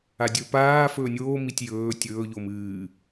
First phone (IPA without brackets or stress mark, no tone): a